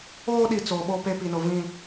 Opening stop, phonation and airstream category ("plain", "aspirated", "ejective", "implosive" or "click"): implosive